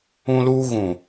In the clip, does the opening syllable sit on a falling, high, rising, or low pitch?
high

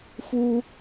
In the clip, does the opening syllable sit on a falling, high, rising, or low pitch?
high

